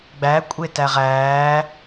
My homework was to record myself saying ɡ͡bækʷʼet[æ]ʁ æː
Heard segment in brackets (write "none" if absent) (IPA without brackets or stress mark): æ